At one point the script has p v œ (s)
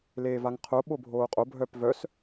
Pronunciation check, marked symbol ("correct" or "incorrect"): correct